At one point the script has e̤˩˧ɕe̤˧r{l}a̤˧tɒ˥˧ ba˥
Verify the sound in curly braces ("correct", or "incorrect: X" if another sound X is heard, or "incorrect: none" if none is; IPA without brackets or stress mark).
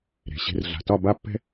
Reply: incorrect: ɮ